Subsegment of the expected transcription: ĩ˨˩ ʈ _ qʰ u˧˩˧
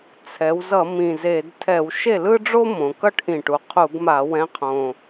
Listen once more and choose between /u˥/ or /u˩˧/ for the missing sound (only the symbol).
u˩˧